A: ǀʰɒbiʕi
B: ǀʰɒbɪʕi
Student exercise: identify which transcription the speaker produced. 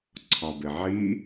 B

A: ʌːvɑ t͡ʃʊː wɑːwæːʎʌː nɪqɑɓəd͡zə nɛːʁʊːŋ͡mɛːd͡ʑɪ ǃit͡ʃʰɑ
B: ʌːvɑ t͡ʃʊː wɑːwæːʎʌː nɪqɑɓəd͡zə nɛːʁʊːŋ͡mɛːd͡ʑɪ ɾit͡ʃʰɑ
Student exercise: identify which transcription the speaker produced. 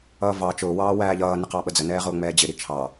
B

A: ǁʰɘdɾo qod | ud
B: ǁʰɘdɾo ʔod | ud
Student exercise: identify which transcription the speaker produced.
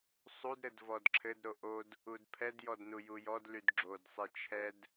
B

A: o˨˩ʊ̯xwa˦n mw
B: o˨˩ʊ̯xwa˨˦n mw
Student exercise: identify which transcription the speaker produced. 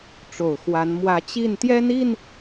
B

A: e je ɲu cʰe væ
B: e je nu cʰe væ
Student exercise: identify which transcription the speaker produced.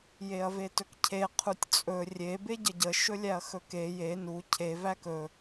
B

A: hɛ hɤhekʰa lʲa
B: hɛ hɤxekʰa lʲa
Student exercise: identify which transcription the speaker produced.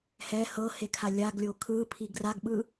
A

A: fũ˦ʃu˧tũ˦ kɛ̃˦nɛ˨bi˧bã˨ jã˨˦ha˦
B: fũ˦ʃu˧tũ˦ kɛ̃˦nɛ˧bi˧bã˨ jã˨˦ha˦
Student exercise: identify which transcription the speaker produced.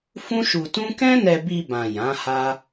B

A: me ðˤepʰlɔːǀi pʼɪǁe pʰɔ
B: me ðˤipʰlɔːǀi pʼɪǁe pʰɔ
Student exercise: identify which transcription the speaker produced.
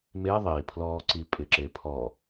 B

